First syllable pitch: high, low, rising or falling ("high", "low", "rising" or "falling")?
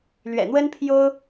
low